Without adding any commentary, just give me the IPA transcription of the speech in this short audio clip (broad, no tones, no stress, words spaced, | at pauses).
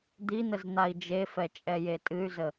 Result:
d̪in̪əz n̪ai̯d͡ʒefɛ t͡ʃʼɛjetʼɨy̯zə